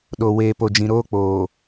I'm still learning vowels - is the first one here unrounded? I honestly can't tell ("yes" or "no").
no